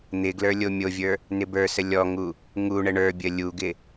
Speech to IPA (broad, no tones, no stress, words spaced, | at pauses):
n̪ɪɡlə˞ lʲomʲovʲə˞ | nɪbə˞sə lʲɔŋu | ŋu ɳəɳə˞bʲə lʲuɡɪ